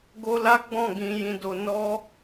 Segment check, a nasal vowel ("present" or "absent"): present